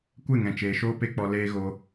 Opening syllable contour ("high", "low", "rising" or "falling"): falling